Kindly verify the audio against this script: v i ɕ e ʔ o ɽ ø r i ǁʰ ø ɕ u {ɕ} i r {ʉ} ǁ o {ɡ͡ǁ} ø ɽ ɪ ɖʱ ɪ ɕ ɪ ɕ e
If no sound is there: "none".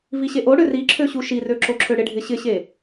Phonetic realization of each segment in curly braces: ʃ, ø, ǁʰ

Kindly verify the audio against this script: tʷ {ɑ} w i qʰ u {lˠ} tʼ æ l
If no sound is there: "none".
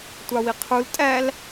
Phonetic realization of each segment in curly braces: ɑ, l

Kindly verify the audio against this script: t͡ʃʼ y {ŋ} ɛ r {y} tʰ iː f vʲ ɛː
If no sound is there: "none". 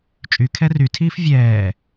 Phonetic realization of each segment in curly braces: kʰ, y

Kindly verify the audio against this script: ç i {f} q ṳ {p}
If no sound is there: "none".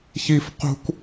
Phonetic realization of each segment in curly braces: f, k

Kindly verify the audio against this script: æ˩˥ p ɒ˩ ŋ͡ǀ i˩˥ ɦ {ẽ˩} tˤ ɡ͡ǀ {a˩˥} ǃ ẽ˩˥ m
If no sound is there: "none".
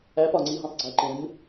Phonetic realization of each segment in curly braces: ẽ˩, æ˩˥

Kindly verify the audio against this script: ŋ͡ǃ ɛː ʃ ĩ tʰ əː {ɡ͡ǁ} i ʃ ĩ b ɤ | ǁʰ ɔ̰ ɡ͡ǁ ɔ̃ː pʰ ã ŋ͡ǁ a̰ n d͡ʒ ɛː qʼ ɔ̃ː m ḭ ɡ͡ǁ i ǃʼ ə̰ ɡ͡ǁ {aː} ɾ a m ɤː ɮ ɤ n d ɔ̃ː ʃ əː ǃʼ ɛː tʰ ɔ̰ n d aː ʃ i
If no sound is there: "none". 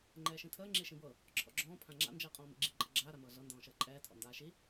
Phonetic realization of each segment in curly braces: ŋ͡ǁ, aː

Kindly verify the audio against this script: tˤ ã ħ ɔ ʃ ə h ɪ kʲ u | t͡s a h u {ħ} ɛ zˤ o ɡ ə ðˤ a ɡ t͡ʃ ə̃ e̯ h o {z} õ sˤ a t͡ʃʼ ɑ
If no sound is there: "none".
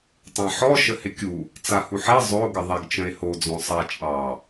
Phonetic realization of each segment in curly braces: ħ, d͡z

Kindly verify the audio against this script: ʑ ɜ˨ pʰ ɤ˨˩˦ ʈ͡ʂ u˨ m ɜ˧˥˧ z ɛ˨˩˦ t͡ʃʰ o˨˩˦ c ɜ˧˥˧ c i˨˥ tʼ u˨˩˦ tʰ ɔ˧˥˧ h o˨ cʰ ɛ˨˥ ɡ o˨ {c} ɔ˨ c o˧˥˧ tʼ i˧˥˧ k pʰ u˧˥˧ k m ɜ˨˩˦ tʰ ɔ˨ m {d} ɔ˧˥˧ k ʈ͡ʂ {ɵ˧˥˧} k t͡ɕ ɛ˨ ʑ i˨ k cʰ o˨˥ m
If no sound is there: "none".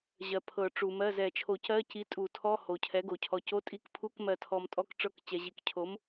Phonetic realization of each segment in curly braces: cʰ, tʼ, ɤ˧˥˧

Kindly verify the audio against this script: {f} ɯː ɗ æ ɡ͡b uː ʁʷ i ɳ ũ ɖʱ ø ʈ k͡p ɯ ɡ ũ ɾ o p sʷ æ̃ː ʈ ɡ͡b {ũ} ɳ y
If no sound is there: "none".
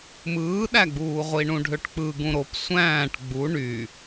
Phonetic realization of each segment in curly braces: m, u

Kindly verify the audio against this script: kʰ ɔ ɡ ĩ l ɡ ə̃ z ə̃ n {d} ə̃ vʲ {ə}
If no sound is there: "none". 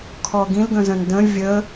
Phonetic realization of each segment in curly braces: d, ə

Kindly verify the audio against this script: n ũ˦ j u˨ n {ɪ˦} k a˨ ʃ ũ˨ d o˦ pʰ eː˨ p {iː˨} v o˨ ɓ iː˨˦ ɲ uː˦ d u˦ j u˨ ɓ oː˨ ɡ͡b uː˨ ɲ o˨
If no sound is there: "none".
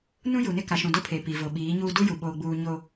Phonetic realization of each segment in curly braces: ɪ˦, iː˨

